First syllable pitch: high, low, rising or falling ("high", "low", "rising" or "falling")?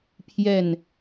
falling